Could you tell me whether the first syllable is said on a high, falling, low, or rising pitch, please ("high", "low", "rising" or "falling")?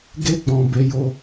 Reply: high